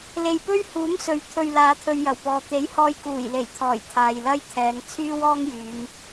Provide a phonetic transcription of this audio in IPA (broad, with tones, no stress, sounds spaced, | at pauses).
l e˨ j p ɵ˥ ɥ h uː˨˥ m s ɵ˨˥ ɥ t̪ʰ ɵ˨ ɥ l aː˨˧ t̪ʰ ɵ˧ ɥ j ɐ˨˩ w p ɔː˨ t̪ e˨˥ j h ɔː˧ j k uː˨˩ j l e˨˩ j t̪ʰ ɔː˨˩ j t̪ʰ aː˨ j l ɐ˥ j t̪ʰ ɛː˨˧ ŋ t͡sʰ yː˥ w ɔː˥ ŋ j yː˨˧ m